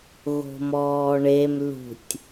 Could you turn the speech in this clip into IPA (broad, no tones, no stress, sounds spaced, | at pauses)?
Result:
ɣ o̤ m ɔː ɳ e m l ṳ tʲ